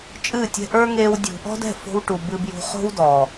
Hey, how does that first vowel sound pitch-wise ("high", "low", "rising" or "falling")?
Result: falling